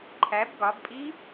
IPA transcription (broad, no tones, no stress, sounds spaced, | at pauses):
ǃʰ æ b ɡ ɒ b pʼ i